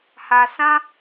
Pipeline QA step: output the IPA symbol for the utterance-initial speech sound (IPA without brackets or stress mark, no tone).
h